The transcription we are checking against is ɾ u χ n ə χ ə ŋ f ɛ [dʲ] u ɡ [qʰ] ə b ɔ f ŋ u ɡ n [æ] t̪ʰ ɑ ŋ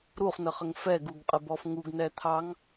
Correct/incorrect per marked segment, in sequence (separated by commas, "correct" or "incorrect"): incorrect, incorrect, incorrect